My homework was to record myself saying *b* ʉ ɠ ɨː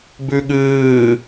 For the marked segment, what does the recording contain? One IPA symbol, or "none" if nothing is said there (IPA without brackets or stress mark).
b